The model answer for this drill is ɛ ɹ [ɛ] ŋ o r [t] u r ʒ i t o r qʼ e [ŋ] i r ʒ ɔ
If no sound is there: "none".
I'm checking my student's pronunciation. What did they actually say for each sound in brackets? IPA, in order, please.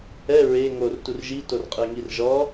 e, t, ŋ

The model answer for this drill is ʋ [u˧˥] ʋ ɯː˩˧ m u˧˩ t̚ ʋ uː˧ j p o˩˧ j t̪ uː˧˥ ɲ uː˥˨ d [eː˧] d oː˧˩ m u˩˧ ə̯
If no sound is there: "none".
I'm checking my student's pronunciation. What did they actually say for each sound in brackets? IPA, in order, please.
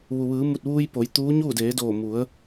u˩, eː˩˧

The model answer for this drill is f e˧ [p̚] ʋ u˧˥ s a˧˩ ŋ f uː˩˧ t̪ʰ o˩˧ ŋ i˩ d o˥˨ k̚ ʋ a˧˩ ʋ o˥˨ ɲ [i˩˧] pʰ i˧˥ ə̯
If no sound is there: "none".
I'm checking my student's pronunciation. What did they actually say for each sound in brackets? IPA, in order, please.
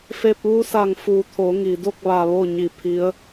p̚, i˧˩

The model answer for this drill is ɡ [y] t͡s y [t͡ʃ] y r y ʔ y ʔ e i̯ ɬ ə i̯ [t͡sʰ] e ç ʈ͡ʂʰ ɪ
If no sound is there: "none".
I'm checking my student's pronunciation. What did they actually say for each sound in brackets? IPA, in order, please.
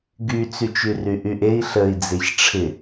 y, t͡ʃ, d͡z

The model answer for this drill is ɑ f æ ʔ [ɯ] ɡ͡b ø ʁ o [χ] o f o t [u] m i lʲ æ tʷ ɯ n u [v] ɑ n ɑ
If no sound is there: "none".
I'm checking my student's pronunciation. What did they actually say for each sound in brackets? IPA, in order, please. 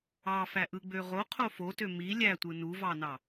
ɯ, qʰ, ø, v

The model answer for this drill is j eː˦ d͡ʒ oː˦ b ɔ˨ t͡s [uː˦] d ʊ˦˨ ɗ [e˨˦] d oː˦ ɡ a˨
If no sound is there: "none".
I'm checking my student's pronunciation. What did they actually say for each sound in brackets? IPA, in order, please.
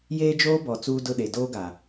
uː˦, e˨

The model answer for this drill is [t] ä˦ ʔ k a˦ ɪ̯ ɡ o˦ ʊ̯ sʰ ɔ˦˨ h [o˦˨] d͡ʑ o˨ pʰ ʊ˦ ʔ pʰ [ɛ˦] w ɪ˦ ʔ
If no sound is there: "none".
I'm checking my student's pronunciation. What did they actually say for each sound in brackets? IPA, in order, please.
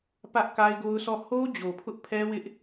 p, o˦, ɛ˦

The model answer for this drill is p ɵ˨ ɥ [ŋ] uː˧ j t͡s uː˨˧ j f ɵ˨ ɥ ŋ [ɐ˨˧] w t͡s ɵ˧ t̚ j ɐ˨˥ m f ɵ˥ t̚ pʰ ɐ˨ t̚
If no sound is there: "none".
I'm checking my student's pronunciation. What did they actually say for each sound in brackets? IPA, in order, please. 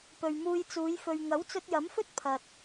m, ɐ˨˥

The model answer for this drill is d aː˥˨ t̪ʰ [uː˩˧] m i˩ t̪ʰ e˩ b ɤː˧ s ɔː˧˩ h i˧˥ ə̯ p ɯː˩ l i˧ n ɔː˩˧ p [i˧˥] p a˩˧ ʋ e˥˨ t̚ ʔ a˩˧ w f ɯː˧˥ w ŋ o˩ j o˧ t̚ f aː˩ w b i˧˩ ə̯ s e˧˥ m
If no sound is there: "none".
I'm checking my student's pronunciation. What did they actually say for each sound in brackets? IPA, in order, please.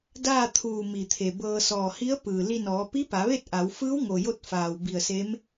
uː˧˩, i˧˥

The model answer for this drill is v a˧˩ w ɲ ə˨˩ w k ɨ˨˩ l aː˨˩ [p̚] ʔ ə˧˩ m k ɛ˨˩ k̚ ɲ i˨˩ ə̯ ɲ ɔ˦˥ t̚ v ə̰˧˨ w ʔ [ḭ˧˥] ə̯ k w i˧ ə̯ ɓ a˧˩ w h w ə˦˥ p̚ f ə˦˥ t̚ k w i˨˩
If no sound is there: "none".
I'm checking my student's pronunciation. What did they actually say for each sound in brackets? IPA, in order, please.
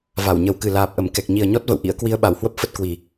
p̚, ḭ˧˥

